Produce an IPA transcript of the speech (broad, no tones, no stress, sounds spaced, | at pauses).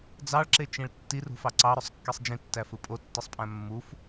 d͡z ɑ ɭ ǁ e t͡ʃ ĩ ɭ tː i r ṳ f ɑ ǀ ɑ ɾ ø sˤ kː i sˤ d͡ʒ ĩ tː æ f ɯ pʼ o tː ɯ sˤ pʼ æ̃ mː u f